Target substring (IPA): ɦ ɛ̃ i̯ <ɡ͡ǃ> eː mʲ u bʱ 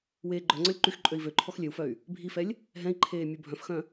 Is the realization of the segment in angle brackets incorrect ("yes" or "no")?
yes